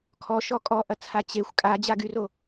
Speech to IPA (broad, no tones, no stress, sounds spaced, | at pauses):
kʰ ɔ ʃ ɔ kʼ ɔ ʔ ɐ t͡sʰ a t͡ɕ e xʷ kʼ a d͡ʑ a ɡ y r o